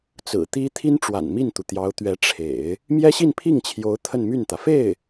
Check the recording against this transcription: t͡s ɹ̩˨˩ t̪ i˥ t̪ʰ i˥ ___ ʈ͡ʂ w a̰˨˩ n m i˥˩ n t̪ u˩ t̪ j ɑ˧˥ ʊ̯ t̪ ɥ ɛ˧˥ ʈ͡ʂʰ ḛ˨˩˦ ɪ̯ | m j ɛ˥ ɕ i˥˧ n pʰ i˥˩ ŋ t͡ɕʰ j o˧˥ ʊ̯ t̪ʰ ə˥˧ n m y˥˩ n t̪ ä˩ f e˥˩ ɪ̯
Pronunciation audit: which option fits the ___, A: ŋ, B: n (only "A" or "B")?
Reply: B